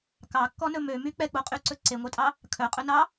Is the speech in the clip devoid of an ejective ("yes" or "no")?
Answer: no